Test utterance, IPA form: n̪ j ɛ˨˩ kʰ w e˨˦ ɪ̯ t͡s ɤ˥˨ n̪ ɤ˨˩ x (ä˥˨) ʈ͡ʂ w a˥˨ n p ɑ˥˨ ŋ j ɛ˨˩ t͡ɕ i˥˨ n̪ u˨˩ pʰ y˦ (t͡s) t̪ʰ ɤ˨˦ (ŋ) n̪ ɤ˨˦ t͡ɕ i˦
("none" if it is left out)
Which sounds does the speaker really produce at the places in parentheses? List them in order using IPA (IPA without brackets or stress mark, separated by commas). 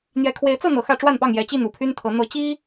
ä˥˨, n, none